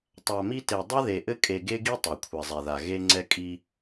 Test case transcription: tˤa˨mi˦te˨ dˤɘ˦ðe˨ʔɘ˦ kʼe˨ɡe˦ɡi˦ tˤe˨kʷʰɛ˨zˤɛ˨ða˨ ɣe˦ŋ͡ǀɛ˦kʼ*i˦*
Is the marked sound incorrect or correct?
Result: correct